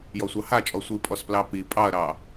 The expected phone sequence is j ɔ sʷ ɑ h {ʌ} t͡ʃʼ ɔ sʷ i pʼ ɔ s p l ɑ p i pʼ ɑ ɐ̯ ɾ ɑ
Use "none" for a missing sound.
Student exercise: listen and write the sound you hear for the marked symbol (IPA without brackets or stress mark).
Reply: a